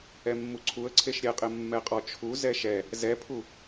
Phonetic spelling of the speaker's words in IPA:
ɛmːuǀʰuə̯ǀʰeʃ ɾʲɛqʼɪ mːɛqʼɔt͡ʃʰu zɛʃɛ | zɛpʰu

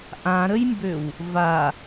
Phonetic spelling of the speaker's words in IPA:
ʔãɾəjmbøw | va

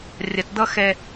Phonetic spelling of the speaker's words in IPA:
rʲɐ˨td̪ʌ˦ xɛ˦

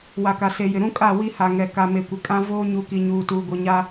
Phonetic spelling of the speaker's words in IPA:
wa˨ka˨se˨jɪ˨ ɾũ˦kʼa˦˨ wi˦ha˨ŋɛ˨ ka˨me˨kʷɪ˨ kʼã˦ voː˦ ɲu˨˦ki˨ɲuː˨ tuː˨ɡʷi˨ɲa˦

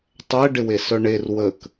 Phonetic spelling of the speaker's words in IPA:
tˤɛɖɪwe sœɳer wək

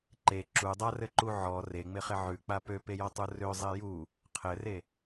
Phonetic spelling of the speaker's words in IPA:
ǃe ǁudˤarɘǃu ʕɔ reŋ͡mɪχɪ ʕʉk͡pa pøpejɔtˤu røzˤe ju | qʰɘre

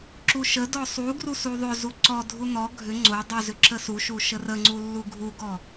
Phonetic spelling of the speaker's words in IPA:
ǁuʃədɔ sˤu ɡrusuðˤʏzu ǀɔdʱu nɔ ɡʱʏ ŋ͡ǀo dˤuzʏ ǁəsuʃu ʃərəŋ͡ǀu lːuɡʱuɡɔ

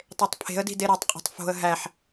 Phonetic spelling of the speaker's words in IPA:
tˤetˤpʰe̤ə̯di̤ deɾetˤqʼo̤tˤ fo̤ə̯ ɦæħ

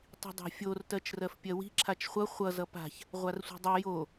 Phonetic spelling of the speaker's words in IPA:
tˤi̤dˤa̤fʲor tɜt͡ʃrɜfpʲɜwi̤ ǁʰat͡ʃχʷʌ χʷʌ zʌpa̤ç | ʁʷarsʷi̤dˤʌ jo

